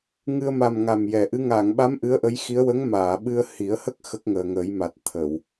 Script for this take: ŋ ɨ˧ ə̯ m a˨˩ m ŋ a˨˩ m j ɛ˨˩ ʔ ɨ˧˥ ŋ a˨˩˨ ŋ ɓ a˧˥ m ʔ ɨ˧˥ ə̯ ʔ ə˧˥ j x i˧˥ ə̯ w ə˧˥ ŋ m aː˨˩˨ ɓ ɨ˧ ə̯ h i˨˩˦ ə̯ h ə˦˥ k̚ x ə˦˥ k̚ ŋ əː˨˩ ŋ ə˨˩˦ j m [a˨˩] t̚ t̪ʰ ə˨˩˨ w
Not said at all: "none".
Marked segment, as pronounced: a˨˩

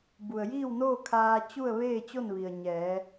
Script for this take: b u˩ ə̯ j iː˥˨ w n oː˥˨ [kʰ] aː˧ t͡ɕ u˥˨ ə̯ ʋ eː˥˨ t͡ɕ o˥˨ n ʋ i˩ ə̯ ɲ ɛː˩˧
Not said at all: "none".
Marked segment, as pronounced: kʰ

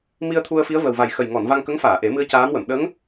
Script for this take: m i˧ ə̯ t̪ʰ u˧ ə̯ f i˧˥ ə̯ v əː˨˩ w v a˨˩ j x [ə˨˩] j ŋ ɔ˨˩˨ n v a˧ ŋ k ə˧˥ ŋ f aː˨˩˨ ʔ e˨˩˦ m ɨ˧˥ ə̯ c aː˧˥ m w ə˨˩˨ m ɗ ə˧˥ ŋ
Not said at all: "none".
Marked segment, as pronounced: ə˨˩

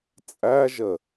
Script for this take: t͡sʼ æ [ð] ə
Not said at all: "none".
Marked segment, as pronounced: ʒ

